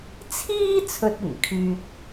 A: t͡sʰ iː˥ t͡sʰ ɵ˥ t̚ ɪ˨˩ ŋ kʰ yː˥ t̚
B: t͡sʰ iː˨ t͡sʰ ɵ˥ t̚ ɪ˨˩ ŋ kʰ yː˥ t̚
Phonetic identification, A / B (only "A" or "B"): A